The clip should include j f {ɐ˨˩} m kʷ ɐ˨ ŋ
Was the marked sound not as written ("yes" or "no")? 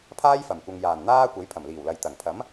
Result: no